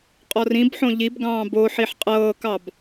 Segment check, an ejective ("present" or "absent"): present